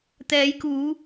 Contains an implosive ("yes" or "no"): no